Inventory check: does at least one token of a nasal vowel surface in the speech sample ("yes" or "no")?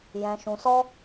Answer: yes